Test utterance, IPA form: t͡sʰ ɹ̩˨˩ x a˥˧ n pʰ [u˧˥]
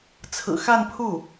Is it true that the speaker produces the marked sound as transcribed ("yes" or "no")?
no